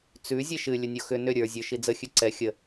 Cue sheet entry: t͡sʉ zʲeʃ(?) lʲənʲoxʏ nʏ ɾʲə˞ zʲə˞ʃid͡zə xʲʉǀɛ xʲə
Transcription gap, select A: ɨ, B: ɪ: A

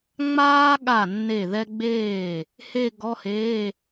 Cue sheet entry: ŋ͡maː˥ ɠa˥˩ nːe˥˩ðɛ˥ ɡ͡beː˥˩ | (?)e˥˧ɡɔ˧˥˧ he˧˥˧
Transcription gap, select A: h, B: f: A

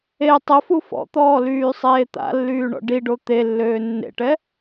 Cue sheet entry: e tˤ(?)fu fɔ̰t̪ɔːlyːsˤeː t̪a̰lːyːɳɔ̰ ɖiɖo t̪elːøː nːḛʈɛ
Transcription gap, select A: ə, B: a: A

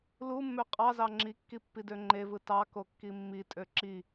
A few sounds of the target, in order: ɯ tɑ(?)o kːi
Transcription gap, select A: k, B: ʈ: A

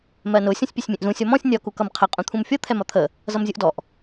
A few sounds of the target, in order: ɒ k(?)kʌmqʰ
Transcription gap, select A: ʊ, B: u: B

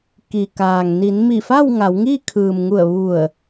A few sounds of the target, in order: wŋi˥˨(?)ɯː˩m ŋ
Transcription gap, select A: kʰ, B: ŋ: A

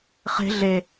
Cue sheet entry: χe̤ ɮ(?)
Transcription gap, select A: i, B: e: B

